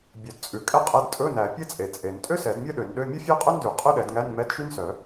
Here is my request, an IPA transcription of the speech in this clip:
bʲœ˨˩˦dt͡sʼʉ˨˩˦kʼɛ˥qʼɛ˧˥˧d tʼɵ˧˥˧næ˨˩˦ pʲɛ˥t͡sʼe˨˩˦ t͡sʼe˨˩˦n tʼø˥sɛ˨˩˦d mʲœ˥ɗø˨˩˦nɗø˧˥˧ mʲɵ˥fʲæ˥qʼø˥ndʉ˨˩˦ qʼø˥ɗɛ˨˩˦dŋæ˧˥˧nmɛ˧˥˧d ʃy˥nsœ˨˩˦

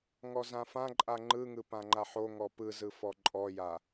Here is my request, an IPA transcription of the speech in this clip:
ŋɔzãfãǃʼa ŋ͡ǃɯŋɯ pãŋ͡ǃaħoŋɔ pɯzɯ fɔǃʼɔja

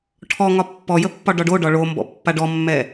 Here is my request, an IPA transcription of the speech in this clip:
ʈʰɔŋɒ pːɔjəpːɒ ɖɒɖo ɖɒɭombɔ̰ pːaɖɔmːɛ

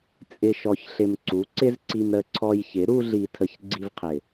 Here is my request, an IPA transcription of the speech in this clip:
t͡sʼɪ˨ʃɔ˨çɬɪ˨m ǀu˨˦ ǀɪ˦zǀi˧mɾə˧ ǀʰɔ˧jçɪ˨˦ ɾu˦ɮi˧tʰə˧ç ɡ͡ǀi˧vqʰɪ˨

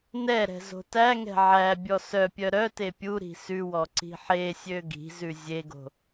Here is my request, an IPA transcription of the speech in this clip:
nɛɾɛ̤ zo̤tæŋɛ̤ ʕæ bʲɔsœpʲœ ɾœte pʲuɾi̤ sʉwɔ ǀi̤ħesʲø ɡi̤zʉ zʲeɡo̤

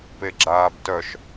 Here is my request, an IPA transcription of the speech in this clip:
peɡ͡ǁaːbtœʃ

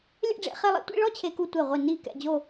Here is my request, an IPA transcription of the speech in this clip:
lʲɛ̰˥˧ɖ͡ʐḛ˥˧χe˥˧ lˠḭ˥˧tʷḭ˥˧ɭɔ˥˧ t͡ɕʰe˥ku˥ tʷe˥˧ʁʷi˥˧ ni˥˧kɛ̰˥˧d͡ʑo˥˧

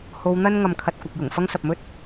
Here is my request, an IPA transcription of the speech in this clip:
ho˨˧wn̪ɐ˥n ŋɐ˧mkʰɐ˧t̚kʷɐ˨k̚jʊ˨˩ŋ fɐ˥ŋsɐ˨p̚mɵ˥t̚

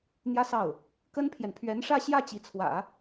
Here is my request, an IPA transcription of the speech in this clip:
n̪jä˥sɑ˥˩ʊ̯ | kə˥npʰjɛ˨n pʰɥɛ˧˥nʂä˥˧ɕjä˥˩ t͡ɕi˧˥t͡sʰwä̰˨˩˦

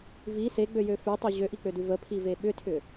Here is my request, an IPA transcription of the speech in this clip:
vi seɡ͡bøjø fʉtˤʉ ʑøʔik͡pødʉ vəpʰive ɓʏtʰʏ

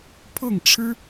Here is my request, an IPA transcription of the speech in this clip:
pʰɤ˥˩ŋʈ͡ʂʰɻ̩˥

